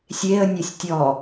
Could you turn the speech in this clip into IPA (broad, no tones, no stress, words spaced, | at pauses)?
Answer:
sʲeə̯ nʲosʲtʲɔ